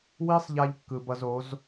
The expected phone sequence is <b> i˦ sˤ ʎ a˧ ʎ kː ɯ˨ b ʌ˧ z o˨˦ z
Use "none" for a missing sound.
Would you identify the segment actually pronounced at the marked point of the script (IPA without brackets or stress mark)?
w